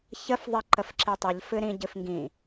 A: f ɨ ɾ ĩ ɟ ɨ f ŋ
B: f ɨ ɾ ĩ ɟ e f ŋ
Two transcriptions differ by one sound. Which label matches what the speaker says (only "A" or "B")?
A